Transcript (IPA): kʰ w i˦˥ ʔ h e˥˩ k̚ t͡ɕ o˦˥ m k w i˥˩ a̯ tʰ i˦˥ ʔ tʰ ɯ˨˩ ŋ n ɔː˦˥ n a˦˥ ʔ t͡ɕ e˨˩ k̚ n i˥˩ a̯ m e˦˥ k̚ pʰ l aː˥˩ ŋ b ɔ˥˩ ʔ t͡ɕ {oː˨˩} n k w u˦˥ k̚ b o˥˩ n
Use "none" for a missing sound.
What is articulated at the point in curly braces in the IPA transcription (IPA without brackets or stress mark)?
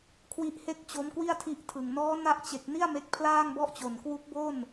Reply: o˨˩